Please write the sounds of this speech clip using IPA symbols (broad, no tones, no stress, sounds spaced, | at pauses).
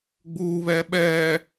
ɡ͡b uː β ɛː ɓ ɛː